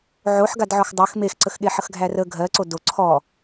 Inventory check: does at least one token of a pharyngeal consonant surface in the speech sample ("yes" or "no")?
yes